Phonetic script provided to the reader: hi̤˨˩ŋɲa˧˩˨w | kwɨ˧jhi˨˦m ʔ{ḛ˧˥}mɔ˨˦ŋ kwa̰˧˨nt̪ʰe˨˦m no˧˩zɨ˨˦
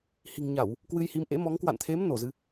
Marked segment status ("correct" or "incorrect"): correct